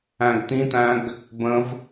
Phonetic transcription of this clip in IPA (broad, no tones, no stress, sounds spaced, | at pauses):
æ̃ ɡ t̪ ĩ t̪ æ̃ ɡ | b ə̃ v